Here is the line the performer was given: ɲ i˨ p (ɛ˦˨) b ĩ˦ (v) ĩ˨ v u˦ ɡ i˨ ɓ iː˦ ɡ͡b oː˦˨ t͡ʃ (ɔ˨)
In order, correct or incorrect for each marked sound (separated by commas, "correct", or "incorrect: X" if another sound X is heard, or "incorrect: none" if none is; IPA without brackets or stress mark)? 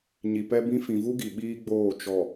incorrect: ɛ˦, incorrect: f, correct